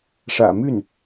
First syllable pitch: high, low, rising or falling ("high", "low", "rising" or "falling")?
low